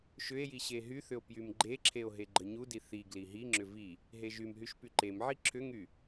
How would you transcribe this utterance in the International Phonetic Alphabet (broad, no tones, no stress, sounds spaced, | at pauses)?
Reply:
ʃ ʏ e̯ j i ɕ e ɦ y θ ʏ o̯ p j y m ɡ͡ǃ e ǁʰ e o̯ ɦ e ɡ͡ǃ ə ɲ u d i θ i ɡ l i ɦ i ŋ͡ǁ ʏ v i | ɦ e ʒ y m ɦ y ʃ p y ǃ e m ʕ i ǁʰ ʏ ŋ y